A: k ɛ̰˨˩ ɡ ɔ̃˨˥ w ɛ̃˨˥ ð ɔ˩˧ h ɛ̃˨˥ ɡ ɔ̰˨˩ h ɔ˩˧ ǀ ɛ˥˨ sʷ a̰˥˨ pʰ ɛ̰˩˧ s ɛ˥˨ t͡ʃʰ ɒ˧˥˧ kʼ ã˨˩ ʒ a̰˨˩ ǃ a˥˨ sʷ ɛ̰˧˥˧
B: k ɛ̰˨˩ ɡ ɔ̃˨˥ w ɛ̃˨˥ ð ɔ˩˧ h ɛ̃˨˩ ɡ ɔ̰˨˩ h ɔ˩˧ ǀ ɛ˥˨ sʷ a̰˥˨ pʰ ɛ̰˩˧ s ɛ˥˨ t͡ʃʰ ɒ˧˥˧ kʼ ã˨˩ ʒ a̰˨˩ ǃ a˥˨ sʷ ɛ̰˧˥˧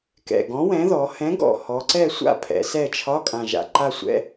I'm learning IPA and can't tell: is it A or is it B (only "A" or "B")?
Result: A